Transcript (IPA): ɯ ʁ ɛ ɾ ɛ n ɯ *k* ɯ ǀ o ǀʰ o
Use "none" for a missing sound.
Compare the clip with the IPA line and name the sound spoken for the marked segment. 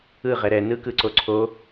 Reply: k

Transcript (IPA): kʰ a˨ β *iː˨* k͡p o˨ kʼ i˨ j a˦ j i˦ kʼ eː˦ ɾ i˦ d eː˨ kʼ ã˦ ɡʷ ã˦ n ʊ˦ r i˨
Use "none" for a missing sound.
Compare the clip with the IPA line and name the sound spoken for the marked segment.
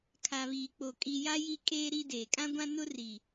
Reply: iː˨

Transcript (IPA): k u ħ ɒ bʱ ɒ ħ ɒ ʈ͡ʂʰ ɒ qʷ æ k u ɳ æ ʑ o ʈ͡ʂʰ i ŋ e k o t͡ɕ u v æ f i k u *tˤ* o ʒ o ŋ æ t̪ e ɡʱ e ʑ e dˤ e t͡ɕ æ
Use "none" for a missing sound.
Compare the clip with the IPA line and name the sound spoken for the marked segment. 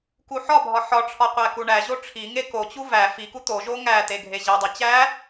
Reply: t̪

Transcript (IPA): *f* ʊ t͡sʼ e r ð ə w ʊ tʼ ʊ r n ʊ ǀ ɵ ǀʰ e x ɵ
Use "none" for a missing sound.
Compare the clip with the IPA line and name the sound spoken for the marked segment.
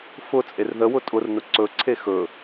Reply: f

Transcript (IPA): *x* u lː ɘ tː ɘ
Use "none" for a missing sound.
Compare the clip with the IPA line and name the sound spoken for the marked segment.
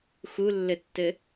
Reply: x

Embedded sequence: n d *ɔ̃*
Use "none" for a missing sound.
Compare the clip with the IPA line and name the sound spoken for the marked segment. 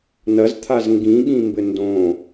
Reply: õ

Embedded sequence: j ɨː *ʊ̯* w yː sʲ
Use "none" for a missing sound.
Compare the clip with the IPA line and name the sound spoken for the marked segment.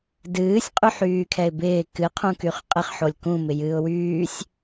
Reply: ʊ̯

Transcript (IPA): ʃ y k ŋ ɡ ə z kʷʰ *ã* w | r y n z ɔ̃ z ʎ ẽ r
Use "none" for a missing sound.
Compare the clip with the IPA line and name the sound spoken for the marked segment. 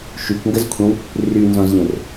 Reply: ə̃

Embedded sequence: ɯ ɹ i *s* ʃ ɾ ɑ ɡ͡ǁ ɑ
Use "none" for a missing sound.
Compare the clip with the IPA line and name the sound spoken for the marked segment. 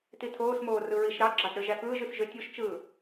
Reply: none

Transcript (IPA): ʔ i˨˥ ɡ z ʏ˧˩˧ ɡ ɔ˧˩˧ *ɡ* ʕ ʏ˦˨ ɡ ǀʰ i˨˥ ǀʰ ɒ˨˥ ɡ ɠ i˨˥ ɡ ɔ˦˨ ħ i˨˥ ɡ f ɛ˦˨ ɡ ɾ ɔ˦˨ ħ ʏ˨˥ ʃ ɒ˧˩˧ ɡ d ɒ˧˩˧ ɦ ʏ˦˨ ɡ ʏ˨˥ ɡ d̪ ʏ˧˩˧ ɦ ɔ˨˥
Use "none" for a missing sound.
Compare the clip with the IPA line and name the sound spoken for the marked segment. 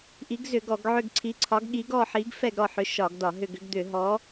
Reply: ɡ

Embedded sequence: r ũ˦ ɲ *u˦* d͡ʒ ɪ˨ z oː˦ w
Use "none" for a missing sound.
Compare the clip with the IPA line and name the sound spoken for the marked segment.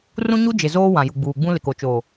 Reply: u˦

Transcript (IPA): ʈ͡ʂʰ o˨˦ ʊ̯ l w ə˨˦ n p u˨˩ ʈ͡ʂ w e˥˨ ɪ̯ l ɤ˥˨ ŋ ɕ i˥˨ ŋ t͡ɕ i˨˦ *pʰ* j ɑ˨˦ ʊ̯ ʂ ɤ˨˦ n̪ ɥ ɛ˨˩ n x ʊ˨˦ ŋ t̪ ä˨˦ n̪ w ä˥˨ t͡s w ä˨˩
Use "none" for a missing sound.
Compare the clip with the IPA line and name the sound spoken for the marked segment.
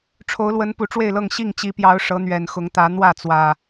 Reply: p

